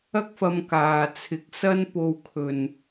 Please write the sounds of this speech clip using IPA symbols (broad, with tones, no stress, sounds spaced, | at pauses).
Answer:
ɐ˥ k̚ f ɐ˧ m k aː˨ t͡sʰ ɪ˨˥ k̚ s ɐ˥ n p o˧ w kʰ ɵ˨ n